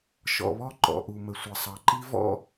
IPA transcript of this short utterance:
ʃ ɔ̰˩ β ɔ˥ ǃ ɔ̰˩ ʔ u˩ m ə˩ sʷ ʌ˩ sˤ ɑ˩ ǃ i˥ v ɔ̰˥

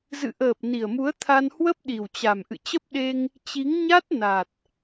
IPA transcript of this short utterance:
z ɨ̰˧˨ ʔ əː˨˩ p̚ n i˨˩ ə̯ m u˨˦ ə̯ t̪ʰ a˧ n h w ə˦˥ p̚ ɗ i˨˩ w t͡ɕ a˨˩ m ʔ ɨ̰˧˨ t͡ɕ ə˦˥ p̚ ɗ e˧ ŋ | t͡ɕ i˨˦ ŋ ɲ a˦˥ t̚ n a˨˩ t̚

